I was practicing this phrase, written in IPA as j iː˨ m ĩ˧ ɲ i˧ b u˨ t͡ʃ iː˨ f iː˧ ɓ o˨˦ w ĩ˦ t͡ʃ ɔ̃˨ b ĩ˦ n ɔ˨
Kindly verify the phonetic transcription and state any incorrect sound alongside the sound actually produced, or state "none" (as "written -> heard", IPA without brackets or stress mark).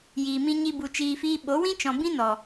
none